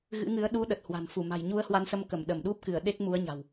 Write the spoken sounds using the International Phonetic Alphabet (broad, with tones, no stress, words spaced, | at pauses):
ɣɨ̰˧˥ŋɨ˨˦ə̯ ɗu˨˦ ɗə˨˩t̚hwa̤˨˩n fu˧˩ma̤˨˩jɲu˧ə̯ hwa˧nsə˧mkə˧˩m ɗə˧˩mɗu˦˥p̚kɨ˧˩ə̯ ɗe˦˥k̚ mu˨˦ə̯ɲa̤˨˩w